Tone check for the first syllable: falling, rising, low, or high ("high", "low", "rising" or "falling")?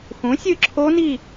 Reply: rising